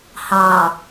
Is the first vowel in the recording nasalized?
yes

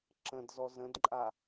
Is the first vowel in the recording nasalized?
yes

